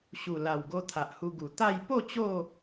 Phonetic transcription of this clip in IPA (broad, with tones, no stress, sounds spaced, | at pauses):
ɕ u˨˩ l a˨˩ w ɡ o˧ t̪ʰ a˨ ʔ h u˧ ɡ u˨˩ t̪ a˥˧ j p o˥˧ t͡ɕ o˥˧